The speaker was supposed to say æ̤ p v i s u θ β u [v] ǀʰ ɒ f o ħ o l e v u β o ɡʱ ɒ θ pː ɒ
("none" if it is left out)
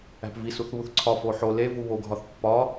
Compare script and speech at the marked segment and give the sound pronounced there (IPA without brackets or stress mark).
θ